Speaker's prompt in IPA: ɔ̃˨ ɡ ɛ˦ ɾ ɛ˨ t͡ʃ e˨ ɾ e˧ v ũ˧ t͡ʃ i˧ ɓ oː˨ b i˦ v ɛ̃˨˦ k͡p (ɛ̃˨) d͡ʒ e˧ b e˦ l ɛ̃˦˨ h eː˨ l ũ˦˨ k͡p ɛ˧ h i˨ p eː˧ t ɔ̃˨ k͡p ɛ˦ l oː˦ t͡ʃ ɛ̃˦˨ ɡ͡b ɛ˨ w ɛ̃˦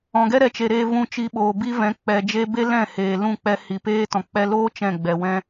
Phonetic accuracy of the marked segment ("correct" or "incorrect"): incorrect